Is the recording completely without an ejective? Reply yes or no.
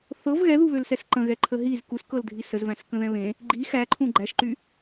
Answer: yes